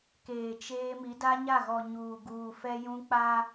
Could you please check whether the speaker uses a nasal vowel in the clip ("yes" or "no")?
yes